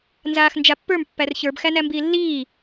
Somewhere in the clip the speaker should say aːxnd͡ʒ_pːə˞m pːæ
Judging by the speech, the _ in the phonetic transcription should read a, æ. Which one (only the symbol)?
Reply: a